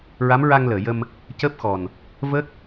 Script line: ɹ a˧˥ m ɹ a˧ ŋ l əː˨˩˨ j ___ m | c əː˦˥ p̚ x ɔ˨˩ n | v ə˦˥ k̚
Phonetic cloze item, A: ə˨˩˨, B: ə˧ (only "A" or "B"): B